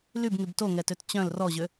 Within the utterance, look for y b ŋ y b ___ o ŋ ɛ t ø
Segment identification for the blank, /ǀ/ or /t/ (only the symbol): t